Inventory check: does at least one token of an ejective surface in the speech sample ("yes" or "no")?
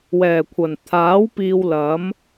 no